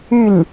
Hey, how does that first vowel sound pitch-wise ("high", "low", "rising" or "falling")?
falling